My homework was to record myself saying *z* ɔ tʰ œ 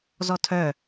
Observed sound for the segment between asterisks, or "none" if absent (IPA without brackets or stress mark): z